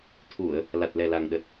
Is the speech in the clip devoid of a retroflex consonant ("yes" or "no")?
yes